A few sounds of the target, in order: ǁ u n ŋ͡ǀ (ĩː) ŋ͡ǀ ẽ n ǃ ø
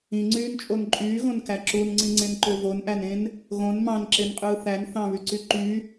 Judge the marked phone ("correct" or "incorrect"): incorrect